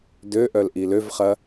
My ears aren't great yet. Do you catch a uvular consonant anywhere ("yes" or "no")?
yes